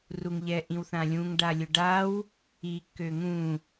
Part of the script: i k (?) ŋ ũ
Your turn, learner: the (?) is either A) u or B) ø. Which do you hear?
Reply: B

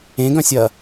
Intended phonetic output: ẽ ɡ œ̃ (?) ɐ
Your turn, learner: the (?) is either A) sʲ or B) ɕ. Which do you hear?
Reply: A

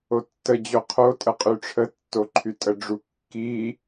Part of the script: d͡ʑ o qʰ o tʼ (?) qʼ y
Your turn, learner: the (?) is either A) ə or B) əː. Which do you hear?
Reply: A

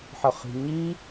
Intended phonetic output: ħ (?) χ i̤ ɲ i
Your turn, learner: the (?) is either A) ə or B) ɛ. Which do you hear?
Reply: A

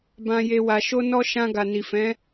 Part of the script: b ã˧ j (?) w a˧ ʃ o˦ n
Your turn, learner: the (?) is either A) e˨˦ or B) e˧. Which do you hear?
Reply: B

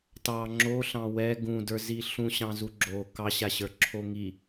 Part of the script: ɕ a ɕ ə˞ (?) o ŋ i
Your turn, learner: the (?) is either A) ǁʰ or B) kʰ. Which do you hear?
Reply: A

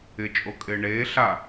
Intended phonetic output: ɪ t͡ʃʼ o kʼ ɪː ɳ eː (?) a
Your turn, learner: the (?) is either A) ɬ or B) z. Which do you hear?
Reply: A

